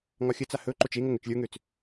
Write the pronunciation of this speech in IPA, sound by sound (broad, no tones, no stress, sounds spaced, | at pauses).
ŋ ɒ xʲ ə t͡s a h ɵ ǃ o t͡ʃ e ŋ o ŋ ø t͡ʃ lʲ ə˞ ŋ ø t͡s